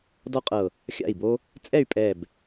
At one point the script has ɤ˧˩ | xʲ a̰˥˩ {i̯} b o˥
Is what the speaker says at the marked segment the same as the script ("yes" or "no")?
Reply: yes